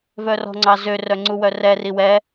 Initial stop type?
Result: click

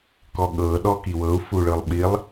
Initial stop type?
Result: plain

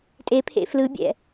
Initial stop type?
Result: ejective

